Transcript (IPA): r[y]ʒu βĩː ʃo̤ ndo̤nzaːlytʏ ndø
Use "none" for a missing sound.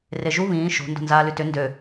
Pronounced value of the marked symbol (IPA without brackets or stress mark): e